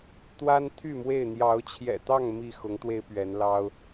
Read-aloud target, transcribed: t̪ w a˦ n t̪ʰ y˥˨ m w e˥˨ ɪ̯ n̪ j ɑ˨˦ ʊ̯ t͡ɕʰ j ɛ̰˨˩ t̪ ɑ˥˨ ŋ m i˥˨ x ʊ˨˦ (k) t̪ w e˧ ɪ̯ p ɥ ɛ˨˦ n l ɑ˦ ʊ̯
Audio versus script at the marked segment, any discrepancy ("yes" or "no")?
yes